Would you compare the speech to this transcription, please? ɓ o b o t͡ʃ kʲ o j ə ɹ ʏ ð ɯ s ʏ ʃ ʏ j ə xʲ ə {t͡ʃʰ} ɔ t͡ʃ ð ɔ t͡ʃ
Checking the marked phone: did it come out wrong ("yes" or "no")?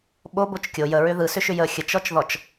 yes